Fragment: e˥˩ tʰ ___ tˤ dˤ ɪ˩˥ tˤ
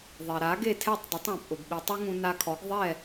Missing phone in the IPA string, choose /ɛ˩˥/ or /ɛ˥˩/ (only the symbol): ɛ˥˩